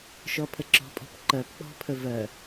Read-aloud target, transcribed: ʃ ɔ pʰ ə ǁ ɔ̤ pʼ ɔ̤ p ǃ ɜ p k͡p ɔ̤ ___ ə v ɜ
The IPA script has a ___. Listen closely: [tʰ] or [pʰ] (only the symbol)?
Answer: pʰ